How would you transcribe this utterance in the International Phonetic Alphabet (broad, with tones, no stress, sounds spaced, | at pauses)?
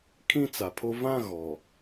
kʰ ĩ˦ t͡s a˨ pʰ o˦ v ã˦ ɣ ɔ˨